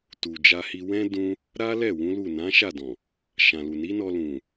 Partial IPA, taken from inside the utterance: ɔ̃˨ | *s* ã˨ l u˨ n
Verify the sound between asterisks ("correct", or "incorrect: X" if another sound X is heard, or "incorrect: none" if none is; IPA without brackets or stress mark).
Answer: incorrect: ʃ